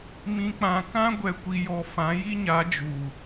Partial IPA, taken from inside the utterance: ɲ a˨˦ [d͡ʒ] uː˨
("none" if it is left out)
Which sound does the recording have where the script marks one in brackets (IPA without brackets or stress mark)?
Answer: d͡ʒ